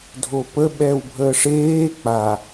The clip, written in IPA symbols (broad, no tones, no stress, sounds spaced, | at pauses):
dʱ o p ə ɓ ɛ w bʱ əː ʂ eː k͡p a